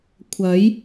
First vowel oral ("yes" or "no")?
yes